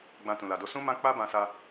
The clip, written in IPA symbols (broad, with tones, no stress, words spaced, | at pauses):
ɡ͡bã˧tũ˨la˨do˧ sũ˦mã˦ k͡pa˦bã˧sa˧